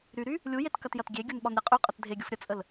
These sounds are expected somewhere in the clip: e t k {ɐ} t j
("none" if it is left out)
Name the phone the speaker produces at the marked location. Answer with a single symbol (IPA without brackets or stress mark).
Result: ɐ